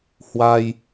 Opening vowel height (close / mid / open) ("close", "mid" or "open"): open